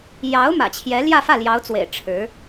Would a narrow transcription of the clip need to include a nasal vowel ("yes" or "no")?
no